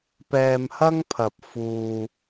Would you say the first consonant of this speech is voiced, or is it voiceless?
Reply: voiceless